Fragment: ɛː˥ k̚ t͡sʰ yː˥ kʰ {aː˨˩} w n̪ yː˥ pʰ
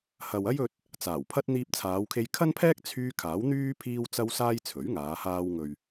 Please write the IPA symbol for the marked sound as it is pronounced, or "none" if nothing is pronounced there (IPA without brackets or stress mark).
aː˨˥